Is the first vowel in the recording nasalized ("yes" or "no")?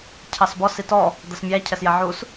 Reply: no